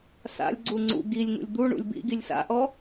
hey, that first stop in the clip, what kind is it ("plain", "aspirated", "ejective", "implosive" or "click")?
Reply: click